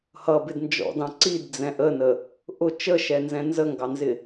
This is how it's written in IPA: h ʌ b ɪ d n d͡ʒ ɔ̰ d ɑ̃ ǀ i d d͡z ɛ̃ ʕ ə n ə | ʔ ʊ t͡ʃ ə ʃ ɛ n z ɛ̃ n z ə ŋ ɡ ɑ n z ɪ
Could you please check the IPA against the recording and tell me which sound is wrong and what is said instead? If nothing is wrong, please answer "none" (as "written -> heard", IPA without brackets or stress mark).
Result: ʕ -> ʔ